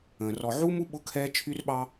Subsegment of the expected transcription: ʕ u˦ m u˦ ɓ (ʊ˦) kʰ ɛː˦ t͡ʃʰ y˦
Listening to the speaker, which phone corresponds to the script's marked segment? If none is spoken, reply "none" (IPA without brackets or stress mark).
ʊ˦